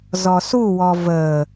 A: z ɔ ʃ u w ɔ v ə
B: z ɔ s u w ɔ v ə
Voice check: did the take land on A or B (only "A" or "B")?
B